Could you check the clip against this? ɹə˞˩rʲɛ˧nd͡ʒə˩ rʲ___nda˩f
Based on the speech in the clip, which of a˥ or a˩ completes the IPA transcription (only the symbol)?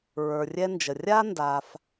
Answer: a˥